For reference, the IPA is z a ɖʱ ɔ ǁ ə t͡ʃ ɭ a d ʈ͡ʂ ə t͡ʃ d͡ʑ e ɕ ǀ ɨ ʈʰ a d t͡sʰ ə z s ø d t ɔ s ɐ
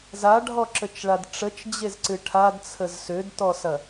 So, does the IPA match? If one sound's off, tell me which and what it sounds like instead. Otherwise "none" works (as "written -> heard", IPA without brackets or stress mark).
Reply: ɕ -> z